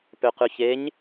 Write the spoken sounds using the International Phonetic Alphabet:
pøqʉçeɲ

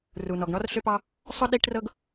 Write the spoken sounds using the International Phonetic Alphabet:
ru˩nɔ˩ɡɳɔ˥r ɬʏ˥pɑ˥ | sˤʊ˥ ɗi˥ʈrɤ˥ɡ

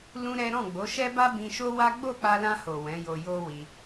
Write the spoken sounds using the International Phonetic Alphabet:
lũ˦ɾɛ˦ ɾɔ̃˦˨ɡ͡bo˨˦ʃɛ˦ba˦ bĩ˧ʃo˦wa˦ ɡ͡bo˦˨k͡pa˧lã˧ho˨ wɛ̃˨˦jo˧ jo˧ wi˧

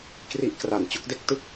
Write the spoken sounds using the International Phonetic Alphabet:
kri˦˥ʔkra˨˩n t͡ɕo˥˩k̚de˦˥k̚tɯ˥˩k̚

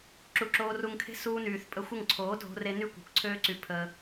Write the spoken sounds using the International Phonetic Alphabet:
ǁu˨ǁoː˧ru˧ŋkʰe̤˦ suː˧nyː˨θpʼə˧ xʷə˦˨ŋǀʰoː˨˦dʱo̤˧re˧ ny˦kʷe̤˨kʷǀʰøː˦ǀy˧ pʰə˧

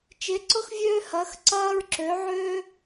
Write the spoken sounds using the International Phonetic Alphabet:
t͡ʃe˧˥ǀʊ˥xvʲøː˥hɐː˧˥x ǀɐː˥ɹǁø˧˥ʕøː˥

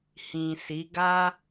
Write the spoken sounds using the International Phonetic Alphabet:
hĩ˨si˨˦ ɡa˦

